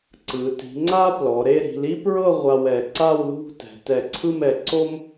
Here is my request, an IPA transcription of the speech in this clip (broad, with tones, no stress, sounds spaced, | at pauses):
ǀ ɯ˩˧ t i̤˩˧ ŋ͡ǀ a˥ p l ɔ˩˧ ɾ e˥˧ ɾ i̤˩˧ l i˥ p ɹ ɤ˥˧ ʁʷ a˧ w ɛ˩˧ ǀ a˥˧ w l ṳ˥˧ t ɛ̤˩˧ t ɛ˧˩ ǀʰ ɯ˥˧ m ɛ˩˧ ǀ o˥ m